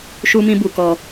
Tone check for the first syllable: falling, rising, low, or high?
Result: high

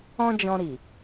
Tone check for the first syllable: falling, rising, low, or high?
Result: high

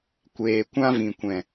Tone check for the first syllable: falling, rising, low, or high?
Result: low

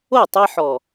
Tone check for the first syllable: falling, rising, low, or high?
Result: falling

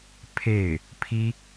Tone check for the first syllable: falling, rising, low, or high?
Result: falling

